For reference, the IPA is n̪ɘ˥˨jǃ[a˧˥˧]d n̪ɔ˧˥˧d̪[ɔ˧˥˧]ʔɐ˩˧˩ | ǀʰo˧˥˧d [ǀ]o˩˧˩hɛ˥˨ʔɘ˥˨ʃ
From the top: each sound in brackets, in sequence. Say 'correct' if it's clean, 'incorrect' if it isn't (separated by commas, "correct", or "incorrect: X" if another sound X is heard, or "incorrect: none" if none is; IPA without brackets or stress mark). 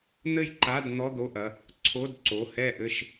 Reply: correct, incorrect: o˧˥˧, correct